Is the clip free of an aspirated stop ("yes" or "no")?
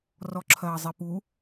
no